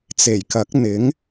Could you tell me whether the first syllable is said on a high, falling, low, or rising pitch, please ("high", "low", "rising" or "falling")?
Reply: low